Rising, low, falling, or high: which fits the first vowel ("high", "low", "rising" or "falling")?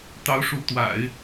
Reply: rising